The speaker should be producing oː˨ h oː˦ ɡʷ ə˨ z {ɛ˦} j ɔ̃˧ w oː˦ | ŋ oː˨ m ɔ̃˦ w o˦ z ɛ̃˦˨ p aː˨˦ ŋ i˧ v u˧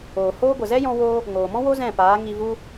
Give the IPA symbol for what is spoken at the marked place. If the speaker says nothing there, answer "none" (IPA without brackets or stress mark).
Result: ɛ˦